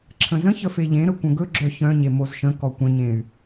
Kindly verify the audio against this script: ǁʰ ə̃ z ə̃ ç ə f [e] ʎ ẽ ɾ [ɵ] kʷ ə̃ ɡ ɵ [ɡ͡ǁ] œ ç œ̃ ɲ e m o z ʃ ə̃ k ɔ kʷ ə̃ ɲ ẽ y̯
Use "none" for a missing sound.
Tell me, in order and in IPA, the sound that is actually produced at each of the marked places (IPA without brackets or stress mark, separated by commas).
e, ə, ɡ͡ǁ